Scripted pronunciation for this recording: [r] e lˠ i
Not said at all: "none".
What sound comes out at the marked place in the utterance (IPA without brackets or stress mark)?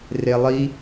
r